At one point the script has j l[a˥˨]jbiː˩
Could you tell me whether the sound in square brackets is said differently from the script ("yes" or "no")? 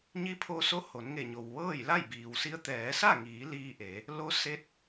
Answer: no